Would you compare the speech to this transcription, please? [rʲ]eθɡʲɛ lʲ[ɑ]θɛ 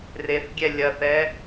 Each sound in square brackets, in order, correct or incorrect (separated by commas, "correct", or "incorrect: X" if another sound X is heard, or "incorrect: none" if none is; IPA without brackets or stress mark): incorrect: r, incorrect: ɐ